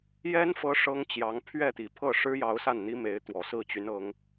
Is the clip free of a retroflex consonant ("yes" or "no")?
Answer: no